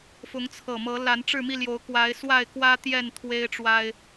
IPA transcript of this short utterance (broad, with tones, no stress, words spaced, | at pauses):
fʊ˨˦ŋt͡sʰɤ˨˩mɤ˨˦ la˨˦nʈ͡ʂɻ̩˥˨mi˥˨ljo˨˦ʊ̯ kwa˨˦ɪ̯swa˥˨ɪ̯kwä˦t̪jɛ˥˨n t̪ʰwe˦ɪ̯ʈ͡ʂwa˦ɪ̯